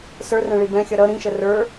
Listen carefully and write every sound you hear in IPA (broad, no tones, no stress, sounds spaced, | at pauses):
s ə˞ r ɛ̃ ɭ i b ɛ̃ xʲ ʌ ɾ ʌ ɾ ĩ ʃ ə r ə˞